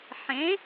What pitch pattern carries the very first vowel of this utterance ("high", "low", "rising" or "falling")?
rising